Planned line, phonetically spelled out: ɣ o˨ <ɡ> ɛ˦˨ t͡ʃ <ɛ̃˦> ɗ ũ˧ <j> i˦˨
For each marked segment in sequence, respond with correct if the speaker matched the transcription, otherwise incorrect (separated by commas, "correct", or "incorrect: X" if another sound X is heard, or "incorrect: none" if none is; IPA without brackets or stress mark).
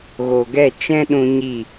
correct, correct, incorrect: ɲ